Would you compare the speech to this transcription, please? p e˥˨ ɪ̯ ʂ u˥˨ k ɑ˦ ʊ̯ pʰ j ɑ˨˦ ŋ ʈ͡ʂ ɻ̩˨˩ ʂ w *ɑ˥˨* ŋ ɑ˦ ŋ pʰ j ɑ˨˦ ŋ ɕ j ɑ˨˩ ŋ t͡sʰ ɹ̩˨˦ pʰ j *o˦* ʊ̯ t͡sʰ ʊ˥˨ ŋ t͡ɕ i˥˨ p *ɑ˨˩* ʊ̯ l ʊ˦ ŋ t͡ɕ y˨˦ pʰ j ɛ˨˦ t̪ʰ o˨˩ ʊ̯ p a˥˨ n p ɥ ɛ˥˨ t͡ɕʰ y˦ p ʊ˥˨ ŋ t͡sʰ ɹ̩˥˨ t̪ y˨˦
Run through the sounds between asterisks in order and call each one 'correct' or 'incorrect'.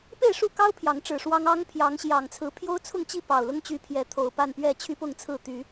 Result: incorrect: ɑ˦, correct, correct

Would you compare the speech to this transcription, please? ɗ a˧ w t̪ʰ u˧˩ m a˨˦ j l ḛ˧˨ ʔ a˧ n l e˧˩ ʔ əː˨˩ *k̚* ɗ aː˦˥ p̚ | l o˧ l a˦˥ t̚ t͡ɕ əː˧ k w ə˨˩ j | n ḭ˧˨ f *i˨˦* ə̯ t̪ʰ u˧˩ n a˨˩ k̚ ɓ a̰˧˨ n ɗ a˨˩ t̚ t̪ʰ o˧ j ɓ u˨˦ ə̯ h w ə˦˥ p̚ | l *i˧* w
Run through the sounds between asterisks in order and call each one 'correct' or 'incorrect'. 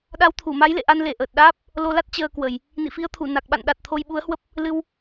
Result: incorrect: t̚, correct, incorrect: ɨ˧

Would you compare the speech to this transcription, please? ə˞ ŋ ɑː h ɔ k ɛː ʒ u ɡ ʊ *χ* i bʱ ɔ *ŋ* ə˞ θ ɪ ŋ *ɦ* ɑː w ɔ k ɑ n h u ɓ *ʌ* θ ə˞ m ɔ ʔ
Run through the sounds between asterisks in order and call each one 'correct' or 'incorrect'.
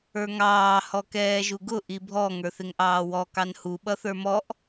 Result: incorrect: ʔ, correct, incorrect: ʔ, correct

